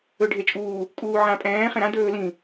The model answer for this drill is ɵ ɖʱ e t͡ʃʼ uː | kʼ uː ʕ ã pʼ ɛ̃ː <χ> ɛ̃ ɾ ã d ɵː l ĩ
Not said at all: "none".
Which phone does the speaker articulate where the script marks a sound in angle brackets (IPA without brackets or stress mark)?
χ